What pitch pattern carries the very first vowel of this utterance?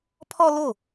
high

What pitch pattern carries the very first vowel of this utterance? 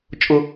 low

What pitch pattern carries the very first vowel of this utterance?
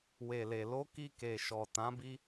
low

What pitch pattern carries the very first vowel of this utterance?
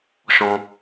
high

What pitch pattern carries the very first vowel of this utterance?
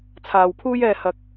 low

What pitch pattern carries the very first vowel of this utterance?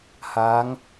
rising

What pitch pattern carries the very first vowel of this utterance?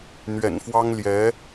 low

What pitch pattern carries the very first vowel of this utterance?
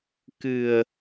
low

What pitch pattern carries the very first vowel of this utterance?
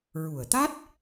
low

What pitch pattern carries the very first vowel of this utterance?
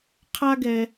high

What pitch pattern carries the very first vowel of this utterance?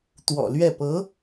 low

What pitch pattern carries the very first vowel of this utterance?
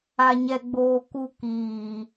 high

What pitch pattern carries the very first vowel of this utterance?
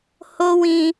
high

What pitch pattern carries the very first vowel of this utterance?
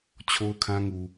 high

